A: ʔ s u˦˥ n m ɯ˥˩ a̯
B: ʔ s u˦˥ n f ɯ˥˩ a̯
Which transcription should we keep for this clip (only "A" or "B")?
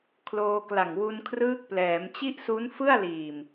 B